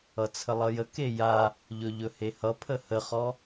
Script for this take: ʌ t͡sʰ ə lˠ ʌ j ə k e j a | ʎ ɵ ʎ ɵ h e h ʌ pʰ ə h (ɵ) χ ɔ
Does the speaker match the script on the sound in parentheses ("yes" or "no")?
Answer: no